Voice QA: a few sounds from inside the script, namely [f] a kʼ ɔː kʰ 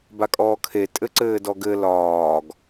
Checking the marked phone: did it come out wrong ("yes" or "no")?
yes